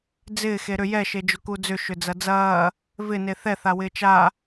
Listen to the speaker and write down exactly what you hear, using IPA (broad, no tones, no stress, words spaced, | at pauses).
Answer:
d͡zɪːxe ɾʏ jɛʃe d͡ʒʊkud͡zʏ ʃʏd͡zɐd͡zɐː | vɪne θɛθa wɪːt͡ʃa